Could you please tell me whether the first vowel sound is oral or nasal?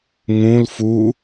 nasal